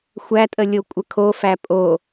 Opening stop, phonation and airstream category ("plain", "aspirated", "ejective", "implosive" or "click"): ejective